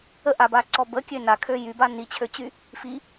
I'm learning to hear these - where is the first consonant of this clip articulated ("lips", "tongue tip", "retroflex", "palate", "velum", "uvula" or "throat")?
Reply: throat